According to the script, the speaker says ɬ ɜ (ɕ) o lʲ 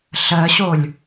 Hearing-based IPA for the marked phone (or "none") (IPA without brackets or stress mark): ɕ